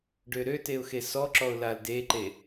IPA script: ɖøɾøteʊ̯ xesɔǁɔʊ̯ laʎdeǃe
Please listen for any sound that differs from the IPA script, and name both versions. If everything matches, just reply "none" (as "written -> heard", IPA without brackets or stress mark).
ʎ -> l